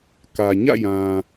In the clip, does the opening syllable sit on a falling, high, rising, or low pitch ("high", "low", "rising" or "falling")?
low